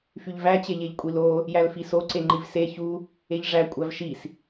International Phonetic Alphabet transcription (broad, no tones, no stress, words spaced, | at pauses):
fyʎvæ t͡ɕeʎeʎkʷʼilo | jælfiso ǀeŋ͡ǃivse çu | eʎʐæ kʷʼævʃis